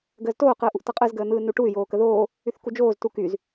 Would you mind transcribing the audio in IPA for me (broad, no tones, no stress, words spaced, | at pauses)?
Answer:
ɡəːztoː qɯːʔuʔtʌqʼɯz ɡəːn̪ɯːnuʈuy̯ joːkəðoː | yθkud͡ʒoːz tukyz